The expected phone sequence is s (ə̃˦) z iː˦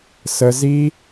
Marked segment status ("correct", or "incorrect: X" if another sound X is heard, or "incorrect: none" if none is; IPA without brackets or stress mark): incorrect: ə˦